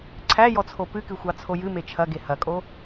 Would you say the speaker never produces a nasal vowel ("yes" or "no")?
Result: yes